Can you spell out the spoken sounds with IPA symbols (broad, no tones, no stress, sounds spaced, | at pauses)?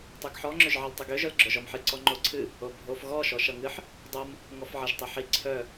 tˤ ø ɡ ħ ɔ ŋ͡ǁ ø ʒ ʕ ə l tˤ ɨ ɡ ø ʒ œ l ɡ͡ǁ œ ʒ ɔ m ħ ɨ ǀ ɔ ŋ͡ǃ o ǀʰ ɨ | o bʱ o f ɣ ɔ ʃ ɔ ʃ ʌ ŋ ɨ ħ | dˤ o m | ŋ ɔ f ʕ ʌ ʒ tˤ ɨ ħ i ǀʰ œ